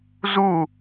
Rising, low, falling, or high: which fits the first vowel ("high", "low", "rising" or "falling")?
falling